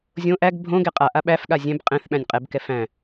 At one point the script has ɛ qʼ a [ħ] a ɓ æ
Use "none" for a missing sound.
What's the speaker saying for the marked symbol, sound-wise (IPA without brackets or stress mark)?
ʔ